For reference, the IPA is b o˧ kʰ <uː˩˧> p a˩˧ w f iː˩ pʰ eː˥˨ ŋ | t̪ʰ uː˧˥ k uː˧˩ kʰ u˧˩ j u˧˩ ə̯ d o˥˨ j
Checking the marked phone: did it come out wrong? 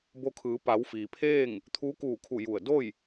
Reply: yes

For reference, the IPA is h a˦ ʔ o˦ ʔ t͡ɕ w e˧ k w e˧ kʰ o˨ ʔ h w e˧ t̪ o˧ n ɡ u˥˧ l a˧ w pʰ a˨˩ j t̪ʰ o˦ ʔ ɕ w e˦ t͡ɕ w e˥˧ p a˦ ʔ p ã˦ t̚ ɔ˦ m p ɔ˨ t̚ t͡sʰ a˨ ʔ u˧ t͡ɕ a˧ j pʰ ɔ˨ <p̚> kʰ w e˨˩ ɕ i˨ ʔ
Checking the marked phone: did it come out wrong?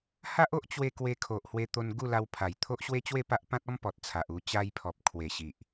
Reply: no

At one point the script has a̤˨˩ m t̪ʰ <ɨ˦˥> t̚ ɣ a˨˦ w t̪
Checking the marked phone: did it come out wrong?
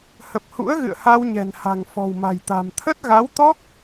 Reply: yes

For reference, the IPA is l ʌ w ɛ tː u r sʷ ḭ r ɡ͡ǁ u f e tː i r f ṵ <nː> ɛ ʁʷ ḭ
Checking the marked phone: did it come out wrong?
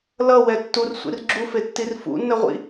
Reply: no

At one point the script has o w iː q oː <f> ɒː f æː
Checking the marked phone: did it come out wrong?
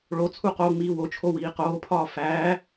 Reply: yes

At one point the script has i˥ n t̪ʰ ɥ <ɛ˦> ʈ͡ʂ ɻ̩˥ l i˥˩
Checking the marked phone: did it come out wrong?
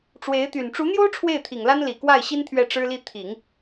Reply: yes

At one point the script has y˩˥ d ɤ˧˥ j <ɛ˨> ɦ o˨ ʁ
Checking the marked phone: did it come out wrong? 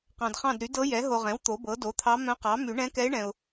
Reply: yes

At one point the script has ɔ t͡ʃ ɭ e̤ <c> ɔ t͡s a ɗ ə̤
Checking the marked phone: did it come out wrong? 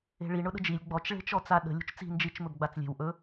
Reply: yes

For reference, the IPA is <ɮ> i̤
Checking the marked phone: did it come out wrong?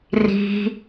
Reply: yes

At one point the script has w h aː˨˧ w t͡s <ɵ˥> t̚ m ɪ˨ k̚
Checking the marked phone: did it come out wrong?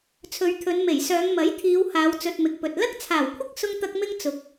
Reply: yes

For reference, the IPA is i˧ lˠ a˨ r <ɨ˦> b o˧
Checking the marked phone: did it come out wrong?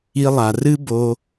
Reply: no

